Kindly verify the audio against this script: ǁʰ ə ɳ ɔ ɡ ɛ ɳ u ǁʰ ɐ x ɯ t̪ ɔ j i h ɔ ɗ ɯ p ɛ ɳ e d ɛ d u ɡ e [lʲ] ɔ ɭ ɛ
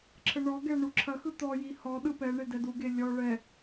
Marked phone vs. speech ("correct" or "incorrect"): correct